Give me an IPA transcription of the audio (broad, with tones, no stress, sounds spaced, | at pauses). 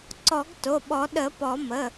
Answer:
ǀ ɔ˨˩˦ ɡ t o˩˧˩ ɓ ɔ˨˩˦ ɗ ə˨˩˦ p ɔ˨˩˦ m ə˩˧˩